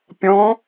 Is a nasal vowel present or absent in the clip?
present